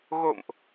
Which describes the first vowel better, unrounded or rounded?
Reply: rounded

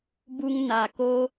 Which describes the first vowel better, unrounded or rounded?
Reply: rounded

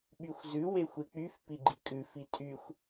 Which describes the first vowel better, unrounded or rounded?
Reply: rounded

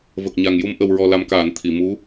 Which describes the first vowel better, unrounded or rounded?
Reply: unrounded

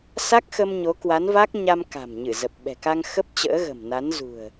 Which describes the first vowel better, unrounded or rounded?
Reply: unrounded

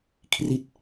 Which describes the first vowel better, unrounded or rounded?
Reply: unrounded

